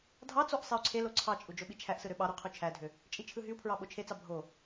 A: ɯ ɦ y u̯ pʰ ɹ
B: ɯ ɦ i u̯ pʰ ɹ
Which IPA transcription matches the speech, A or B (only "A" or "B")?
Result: A